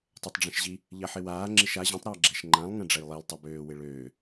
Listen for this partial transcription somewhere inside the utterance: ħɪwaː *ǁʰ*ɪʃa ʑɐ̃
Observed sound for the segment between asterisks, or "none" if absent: ŋ͡ǁ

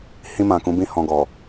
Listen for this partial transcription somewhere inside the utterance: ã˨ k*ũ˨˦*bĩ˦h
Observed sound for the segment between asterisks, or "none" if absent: ũ˨˦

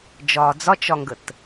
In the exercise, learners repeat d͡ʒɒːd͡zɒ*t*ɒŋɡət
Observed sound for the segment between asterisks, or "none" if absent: t͡ʃ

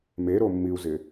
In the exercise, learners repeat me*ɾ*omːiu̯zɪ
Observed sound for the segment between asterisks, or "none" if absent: ɾ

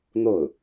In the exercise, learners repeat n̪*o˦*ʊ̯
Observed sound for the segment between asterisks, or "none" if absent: o˥˩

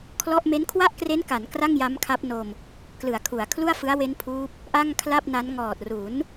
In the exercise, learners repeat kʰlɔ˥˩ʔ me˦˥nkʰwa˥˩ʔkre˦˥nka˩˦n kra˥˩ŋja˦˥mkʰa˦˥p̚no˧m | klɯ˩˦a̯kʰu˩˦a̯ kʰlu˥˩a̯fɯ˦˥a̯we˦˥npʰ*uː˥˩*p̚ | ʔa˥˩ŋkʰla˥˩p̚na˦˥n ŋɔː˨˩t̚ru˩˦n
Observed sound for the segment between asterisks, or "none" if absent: uː˦˥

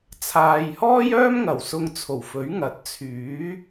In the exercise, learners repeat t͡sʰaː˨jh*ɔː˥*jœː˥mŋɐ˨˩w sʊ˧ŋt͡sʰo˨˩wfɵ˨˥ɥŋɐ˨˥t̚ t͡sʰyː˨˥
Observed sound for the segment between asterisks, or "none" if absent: ɔː˥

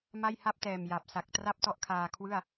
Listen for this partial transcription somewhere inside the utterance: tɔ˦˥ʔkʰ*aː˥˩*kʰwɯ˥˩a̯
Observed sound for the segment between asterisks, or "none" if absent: aː˧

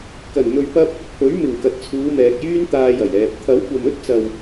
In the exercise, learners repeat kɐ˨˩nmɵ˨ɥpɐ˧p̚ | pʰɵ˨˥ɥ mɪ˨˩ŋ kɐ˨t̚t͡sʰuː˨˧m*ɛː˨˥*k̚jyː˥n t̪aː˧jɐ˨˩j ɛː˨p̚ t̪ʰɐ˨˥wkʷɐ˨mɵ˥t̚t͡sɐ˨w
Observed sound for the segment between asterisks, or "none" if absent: ɛː˨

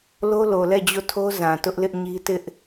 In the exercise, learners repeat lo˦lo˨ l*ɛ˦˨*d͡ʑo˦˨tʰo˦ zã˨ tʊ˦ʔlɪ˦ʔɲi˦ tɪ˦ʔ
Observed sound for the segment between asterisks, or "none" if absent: ɛ˦˨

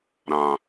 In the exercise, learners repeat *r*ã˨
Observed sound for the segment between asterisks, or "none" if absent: ɾ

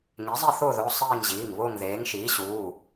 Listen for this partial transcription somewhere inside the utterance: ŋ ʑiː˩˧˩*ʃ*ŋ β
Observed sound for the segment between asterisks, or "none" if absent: none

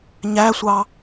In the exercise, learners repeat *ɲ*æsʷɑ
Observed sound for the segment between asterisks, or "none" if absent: ɲ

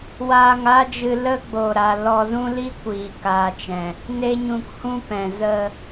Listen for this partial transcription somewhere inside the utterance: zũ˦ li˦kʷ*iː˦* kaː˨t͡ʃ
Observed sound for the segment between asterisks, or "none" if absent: iː˨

